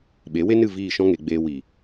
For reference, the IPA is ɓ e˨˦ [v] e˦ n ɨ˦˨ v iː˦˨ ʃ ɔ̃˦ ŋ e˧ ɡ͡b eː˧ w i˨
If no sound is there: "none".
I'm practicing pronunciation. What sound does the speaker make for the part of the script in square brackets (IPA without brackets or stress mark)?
w